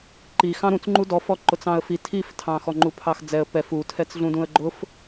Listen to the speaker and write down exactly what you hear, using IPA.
ǃi xɑ̃ɾũt͡s ŋ͡ǃudɔfɔ ǃʊt͡sɑ̃ə̯fi tʰiftʰɑ̃ xɔŋ͡ǃupʰɑxd͡zɛə̯ pɛf utʰɛt͡sɮũdũə̯ ɡ͡ǃʊf

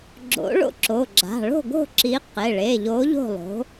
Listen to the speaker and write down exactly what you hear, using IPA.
ɡ͡ǁo̰˨˥ ɭo̰˥˨ǁo˩˧˩ɡ͡ǁa̤˩˧˩ ɭo̤˥˨ ɡo̤˥˨ǁi˨˥ qe˩˧˩ɭe˩˧˩ʎo˨˥ ʎo̤˥˨lˠo̤˨˥

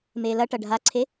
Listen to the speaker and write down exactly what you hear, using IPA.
meːlɐʈɐ ɖʱaǀʰe

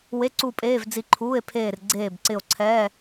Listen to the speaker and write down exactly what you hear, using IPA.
we˧˥˧ǀu˦˨ pʼeː˧˥˧vd͡zi˦˨ ǃʰuː˧˥˧e̯pʰeː˦˨rɡ͡ǀeː˦˨bǀɪ˦˨o̯ ǀʰɛ˧˥˧

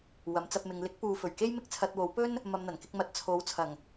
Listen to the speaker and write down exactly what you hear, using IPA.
wɐ˨˥mt͡sɐ˧p̚mɪ˨˧ŋ lɪ˨˥k̚puː˨ fɵ˨˩ɥke˥j mɪ˥k̚t͡sʰɐ˧t̚wo˨˥w pɵ˥n | mɐ˧mn̪ɐ˨˩nkɪ˨˥k̚mɐ˨˥t̚ t͡sʰo˨˥wt͡sʰɐ˨˩ŋ

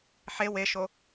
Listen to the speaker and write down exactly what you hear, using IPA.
ħe weʃo

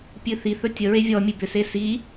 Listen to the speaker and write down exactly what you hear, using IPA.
pʲɨθiθɵ tʲəɹe vʲɔ mʲɨbʏse si

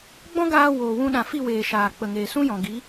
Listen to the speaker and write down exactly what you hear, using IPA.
ɡ͡bɔ̃˦ɡaː˧ woː˨wũ˧ɗã˨fi˦˨ weː˨ʃaː˨k͡pə˨ŋeː˨ sũ˦jɔ̃˨ ɡi˨˦

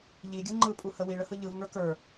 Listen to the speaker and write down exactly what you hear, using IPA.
ʎiɡʲɯ ŋ͡ǃɯpʼuhə wiɭəhɯ ʎɯvŋə˞ kə˞

